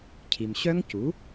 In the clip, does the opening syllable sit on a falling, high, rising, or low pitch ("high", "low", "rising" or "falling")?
low